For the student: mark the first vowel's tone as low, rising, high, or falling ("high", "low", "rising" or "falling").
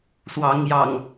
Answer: rising